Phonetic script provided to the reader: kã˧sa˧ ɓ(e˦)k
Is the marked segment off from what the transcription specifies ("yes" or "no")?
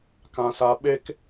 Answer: no